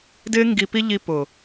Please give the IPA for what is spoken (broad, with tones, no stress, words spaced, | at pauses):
dɪː˦ ŋɡi˧pi˦ ʎi˧ pʊː˨